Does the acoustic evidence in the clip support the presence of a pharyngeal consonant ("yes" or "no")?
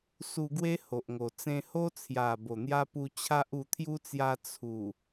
no